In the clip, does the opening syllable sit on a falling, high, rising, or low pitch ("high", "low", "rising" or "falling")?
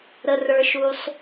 low